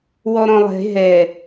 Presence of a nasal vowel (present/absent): present